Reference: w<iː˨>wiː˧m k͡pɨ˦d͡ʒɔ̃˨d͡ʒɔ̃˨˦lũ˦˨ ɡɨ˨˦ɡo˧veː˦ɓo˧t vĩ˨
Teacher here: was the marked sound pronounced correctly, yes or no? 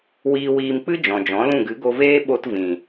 no